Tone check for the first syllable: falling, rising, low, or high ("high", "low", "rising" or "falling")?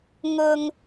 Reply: low